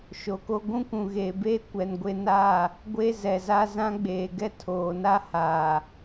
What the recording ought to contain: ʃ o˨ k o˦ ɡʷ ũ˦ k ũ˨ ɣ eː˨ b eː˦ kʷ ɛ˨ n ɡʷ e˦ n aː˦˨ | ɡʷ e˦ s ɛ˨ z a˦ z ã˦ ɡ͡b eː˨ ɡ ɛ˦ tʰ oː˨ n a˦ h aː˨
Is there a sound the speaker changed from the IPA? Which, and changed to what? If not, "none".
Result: s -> z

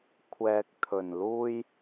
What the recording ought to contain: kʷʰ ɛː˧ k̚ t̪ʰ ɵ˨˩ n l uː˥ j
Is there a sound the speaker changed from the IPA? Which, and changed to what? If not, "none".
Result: none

